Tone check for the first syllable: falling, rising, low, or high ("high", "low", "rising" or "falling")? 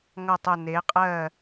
falling